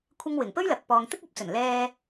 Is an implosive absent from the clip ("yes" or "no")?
yes